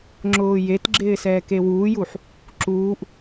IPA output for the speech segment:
ŋ͡ǁʊːjetɡ͡ǁɪː sɛːkewuːjuħ | ǁuːʔ

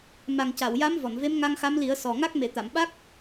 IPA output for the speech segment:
ma˨˩ŋca˨˩˨wja˧˥m vɔ˨˩˨nve˧˥mŋa˧ŋ xa˧˥mli˨˩˦ə̯sɔ˨˩ŋa˦˥k̚ me˨˩˨t̪a˨˩˨mɓa˦˥k̚

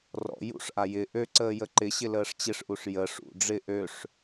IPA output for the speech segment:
rɔ̰ jṵʂʔa jɪ ʔøǀəː jəǃɪɕɪ ləːʂt͡ɕɪʂʔuʂ jə ʂṵ ɖ͡ʐɪ ʔøʂ

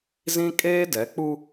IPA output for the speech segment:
zĩ˦ kʼeː˦dɛ˨˦k͡pu˦

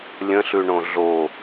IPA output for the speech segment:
lʲə̃ɬʉɳõ ɮo

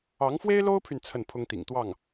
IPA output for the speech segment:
ɑ˧˥ŋfwe˥ɪ̯lo˥ʊ̯pʰy˨n t͡sʰə˥˩npʰʊ˥ŋt̪ḭ˨˩ŋt̪wɑ˥˩ŋ

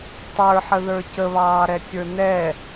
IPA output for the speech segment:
tˤə˞ħəðə˞ cəβɑːɾɛkʲə˞ nɛ

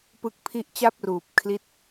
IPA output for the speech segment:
pɯ˦˥k̚pʰi˥˩ʔ t͡ɕa˥˩p̚ruː˨˩p̚ kʰli˥˩t̚

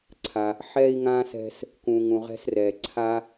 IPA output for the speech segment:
ǀʰa˩ | ħɛ˧i̯ŋã˧ sɛ̤˧s | kũ˩ŋũ˩ ʁɛ̤˧srɛ˩ǀʰa˧

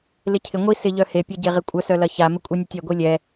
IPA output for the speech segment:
lɪcʰɪ ŋʷi sɪ ʎœhe pʲɐɟeʁɪkʷʼœs œlɐça mɪkʷʼinʲetʲɛ ɡʷilʲɛ

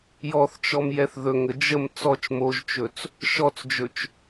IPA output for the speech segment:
jɔθt͡ʃɔm jɛθðɵŋə d͡ʒəm t͡sɔt͡ʃ moʒt͡ʃɵt͡s | ʃɔt͡sd͡ʒɵt͡ʃ

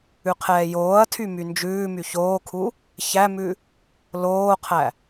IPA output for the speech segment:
ʉqʰɛːjoːɐ̯tʰy mynd͡ʒʉːmy çoːkʰu | çæmʉ | loːqʰæ

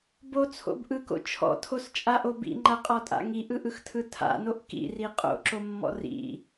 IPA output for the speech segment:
bot͡sʰo̰b ʔɯko̰ t͡ʃʰɔ̰tʰost͡ʃʼaʔo bḭŋ͡ǃaqʼɔtʼa̰ ŋiʔɯʔɯxtʰɯ tʰa̰noʔ kḭri qʼo̰ǁomːɔ̰ rḭ

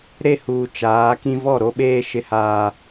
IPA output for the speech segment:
ɾe˦huː˨ t͡ʃaː˨˦kĩ˦ vɔ˦˨ɾo˦ɓeː˦ ʃɪ˦haː˦

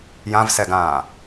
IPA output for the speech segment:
jãvsɛɡãː

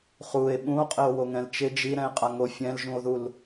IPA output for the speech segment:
χue̯ ɓũo̯qʼɪo̯ woŋɛ̃lt͡ʃɪ d͡ʒi ɾɛ̃e̯qʼaŋo fʲɛ̃lʒũo̯ðul

